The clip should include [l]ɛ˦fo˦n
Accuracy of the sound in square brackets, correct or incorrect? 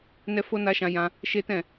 incorrect